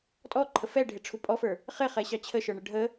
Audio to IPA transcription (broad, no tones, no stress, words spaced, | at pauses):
tʼɔǃʰə fɛɖʱɪʈ͡ʂʰu pʼɔfə˞ | χɪχɛɕɑ t͡ɕʰəʃə˞ɳə ɖʱə